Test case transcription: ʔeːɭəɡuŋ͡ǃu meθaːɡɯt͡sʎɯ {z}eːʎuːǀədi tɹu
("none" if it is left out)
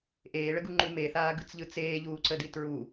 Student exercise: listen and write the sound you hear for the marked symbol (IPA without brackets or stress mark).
t͡s